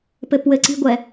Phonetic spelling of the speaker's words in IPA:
p ɘ p w ɘ ǀ i̤ ɡʷ ɛ

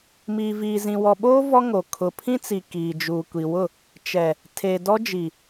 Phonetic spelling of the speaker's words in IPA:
m iː˨ v iː˨ z ĩ˨ w ɔ˨ ɓ oː˦ v ɔ˦ ŋ o˨ kʰ ʊ˨ pʰ ĩ˦ t͡s i˨ k iː˨ d͡ʒ uː˨ kʷ i˨ w ʊ˦˨ | t͡ʃ ɛ˨ | tʰ e˨ d ɔ˦ d͡ʒ i˨

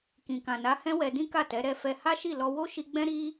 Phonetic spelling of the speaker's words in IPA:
k ĩ˨ k ã˨ n a˨˦ h ɛ̃˦ w ɛ˧ d ĩ˦ k a˦˨ t ɛ˨˦ ɾ ɛ˧ f ɛ˧ h a˦ ʃ i˦˨ l ɔ˧ w o˦ ʃ i˧ ɡ͡b ɛ̃˦ ɾ i˦

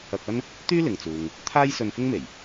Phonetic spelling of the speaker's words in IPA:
ɐ˧ k̚ ɐ˥ n | t̪ yː˥ l ɪ˨ ŋ t͡s uː˨ ŋ | t̪ʰ aː˥ j s ɵ˧ n f ɪ˥ ŋ m e˨˩ j

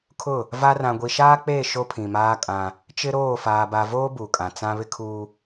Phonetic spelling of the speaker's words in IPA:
kʰ ʊ˦˨ | v a˦ r ã˨ ɡʷ i˨ ʃ aː˦ k͡p eː˦˨ ʃ o˦ pʰ ĩ˨ m aː˦ kʼ ã˦ | t͡ʃ ɪ˦ ɾ oː˦˨ f aː˨ b a˨ v oː˦ b u˨ kʼ ã˨ t͡s ã˦ β ɪ˦ kʰ uː˦

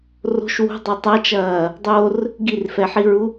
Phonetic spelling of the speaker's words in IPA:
r o̤ ʃ w ṳ dˤ o tˤ ɐ t͡ʃ ɐː | dˤ o r | ɡ i r f ɛ ħ i ɹ u

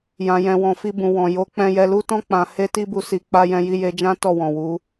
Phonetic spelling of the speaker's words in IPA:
j ã˨ j ɛ̃˨ w ɔ̃˨ f i˧ b ũ˨ w ɔ̃˨ j o˨˦ k͡p ɛ̃˧ j ɛ˧ l u˦ t ɔ̃˦ k͡p ã˧ h e˦ t i˦ b u˧ s i˧ k͡p a˦ j ɛ̃˧ j i˧ j e˧ d͡ʒ ã˦ t ɔ˦˨ w ɔ̃˨ w u˨˦

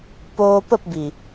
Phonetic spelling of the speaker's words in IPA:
p oː˧ p ə˦˨ p b i˨

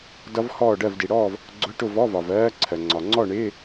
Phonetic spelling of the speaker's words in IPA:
d ʌ˦˥ v h ɔː˥˨ ɖ ɜ˥˨ v d i˩ ɽ ɔː˥˨ v | ɡ͡ǀ ʊ˧˥˧ ʈ ʊ˥˨ v ɔ˧˥˧ v ɒ˩ v ɜː˦˥ ǀʰ ɜ˩ ŋ͡ǀ ɒ˩ ŋ͡ǀ ɔ˥˨ ɳ ɪː˧˥˧

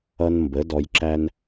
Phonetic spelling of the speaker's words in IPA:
ʌ˦ n m b ə˩˥ d ɔ˨ j ǁ æ˦ n

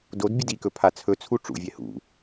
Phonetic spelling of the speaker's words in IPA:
d o d bʲ ʊ d i k ɵ pʰ a t͡sʰ ɵ t͡sʰ u ʈ͡ʂ ṵ vʲ ɛ h ṵ

